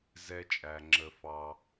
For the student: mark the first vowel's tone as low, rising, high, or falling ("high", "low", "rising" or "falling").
low